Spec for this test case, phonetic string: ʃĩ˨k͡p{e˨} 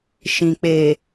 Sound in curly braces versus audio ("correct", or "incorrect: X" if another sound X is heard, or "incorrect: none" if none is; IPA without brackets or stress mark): correct